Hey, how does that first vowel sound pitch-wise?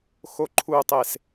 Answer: low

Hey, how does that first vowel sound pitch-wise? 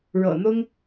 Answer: low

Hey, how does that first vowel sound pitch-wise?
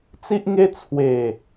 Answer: high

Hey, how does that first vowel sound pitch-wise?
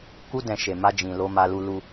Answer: high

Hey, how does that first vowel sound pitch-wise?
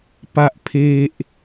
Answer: high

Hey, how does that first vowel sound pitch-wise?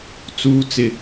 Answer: low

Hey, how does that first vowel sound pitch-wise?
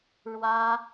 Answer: high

